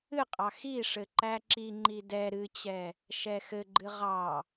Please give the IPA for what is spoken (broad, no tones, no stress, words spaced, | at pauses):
ɨqʼɑ xiʂɘ ǃæǁiŋ͡ǃi dɛ ɾɨt͡ɕɛ | ʃɛxɘɡ͡ǃɨ ʁɑ